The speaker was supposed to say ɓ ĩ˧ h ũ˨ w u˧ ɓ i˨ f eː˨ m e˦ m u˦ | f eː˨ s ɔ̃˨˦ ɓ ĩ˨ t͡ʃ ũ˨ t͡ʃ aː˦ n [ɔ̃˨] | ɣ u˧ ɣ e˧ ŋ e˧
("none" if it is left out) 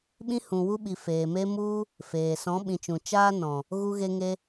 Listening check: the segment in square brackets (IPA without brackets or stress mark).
ɔ̃˨